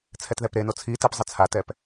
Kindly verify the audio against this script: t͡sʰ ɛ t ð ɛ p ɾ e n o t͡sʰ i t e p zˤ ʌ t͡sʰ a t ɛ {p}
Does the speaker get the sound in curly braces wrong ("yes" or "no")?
no